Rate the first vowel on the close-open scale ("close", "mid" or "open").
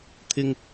close